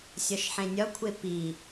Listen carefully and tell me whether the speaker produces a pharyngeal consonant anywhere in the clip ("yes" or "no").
yes